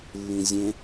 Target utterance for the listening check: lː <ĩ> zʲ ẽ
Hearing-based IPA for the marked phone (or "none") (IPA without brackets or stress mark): ĩ